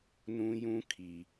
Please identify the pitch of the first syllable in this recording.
high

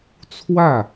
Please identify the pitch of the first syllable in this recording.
falling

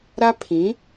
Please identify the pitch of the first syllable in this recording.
high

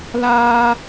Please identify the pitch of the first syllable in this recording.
high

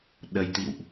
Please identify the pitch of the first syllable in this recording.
low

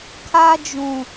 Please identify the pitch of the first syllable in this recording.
high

